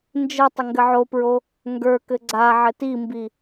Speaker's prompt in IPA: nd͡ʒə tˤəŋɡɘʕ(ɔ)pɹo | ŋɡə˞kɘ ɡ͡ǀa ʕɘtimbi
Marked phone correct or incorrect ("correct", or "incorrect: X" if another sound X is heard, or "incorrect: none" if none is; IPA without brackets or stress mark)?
incorrect: o